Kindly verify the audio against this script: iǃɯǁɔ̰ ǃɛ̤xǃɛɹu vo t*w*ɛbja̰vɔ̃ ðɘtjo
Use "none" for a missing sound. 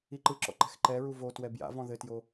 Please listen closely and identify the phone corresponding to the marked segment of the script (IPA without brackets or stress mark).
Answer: w